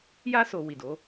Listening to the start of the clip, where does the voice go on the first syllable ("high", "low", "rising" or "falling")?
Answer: high